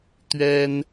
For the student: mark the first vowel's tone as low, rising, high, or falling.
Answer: high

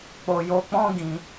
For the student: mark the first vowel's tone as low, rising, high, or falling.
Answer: low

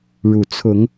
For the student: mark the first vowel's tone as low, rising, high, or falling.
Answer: low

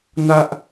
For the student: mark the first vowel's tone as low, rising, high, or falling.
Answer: low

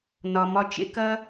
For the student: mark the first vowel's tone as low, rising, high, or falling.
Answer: low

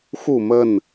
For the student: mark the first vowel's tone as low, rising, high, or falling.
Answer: falling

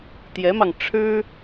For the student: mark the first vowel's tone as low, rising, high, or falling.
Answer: rising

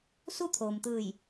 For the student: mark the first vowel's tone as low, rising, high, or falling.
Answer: falling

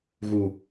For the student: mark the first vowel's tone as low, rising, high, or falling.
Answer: low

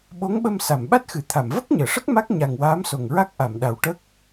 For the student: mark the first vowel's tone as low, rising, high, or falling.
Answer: rising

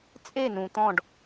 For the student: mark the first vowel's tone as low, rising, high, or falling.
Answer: falling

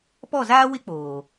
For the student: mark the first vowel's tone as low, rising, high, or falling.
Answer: falling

